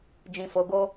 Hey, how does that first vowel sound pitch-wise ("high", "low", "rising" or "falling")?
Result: low